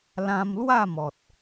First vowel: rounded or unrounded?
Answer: unrounded